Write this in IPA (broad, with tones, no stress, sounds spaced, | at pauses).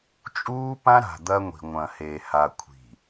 t͡ʃʼ uː˦ p ã˦ ɾ a̤˨ d̪ ɐ˦ ŋʷ i̤˨ ŋʷ ɐ̃˨ h e˨ h a˨ kʷʰ i̤˨